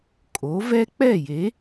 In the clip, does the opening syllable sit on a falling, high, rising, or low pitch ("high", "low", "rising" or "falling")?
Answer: rising